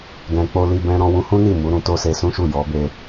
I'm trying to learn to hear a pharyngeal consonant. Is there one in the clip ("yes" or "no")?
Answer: no